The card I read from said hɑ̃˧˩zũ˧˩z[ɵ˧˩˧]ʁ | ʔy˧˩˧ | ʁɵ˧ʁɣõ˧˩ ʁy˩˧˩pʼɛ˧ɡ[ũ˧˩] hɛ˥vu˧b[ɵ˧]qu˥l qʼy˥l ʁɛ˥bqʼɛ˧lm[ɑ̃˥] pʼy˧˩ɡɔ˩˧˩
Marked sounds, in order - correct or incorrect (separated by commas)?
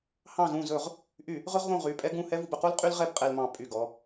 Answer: correct, correct, correct, incorrect